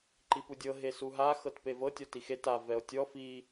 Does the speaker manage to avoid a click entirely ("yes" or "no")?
no